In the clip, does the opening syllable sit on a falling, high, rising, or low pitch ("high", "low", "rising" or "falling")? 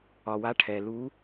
low